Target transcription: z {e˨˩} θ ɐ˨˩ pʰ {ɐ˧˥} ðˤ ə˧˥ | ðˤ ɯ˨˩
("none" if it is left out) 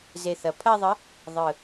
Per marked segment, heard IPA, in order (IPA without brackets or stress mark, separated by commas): e˨˩, ɐ˥˧